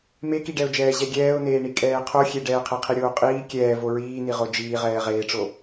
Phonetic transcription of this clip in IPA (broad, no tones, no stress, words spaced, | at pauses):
mekiɖɛʊ̯d͡ʒɛː ʑɛɡʲɛːʊ̯neːɳi kʼɛːqʰo xʲeɖɛːqʰe qʰiɾʲoːqʼiː kʲɛːvo ɹiːniʁo d͡ʒiːʁɛː ʁeːʈ͡ʂo